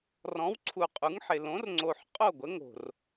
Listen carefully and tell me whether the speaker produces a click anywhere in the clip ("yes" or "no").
yes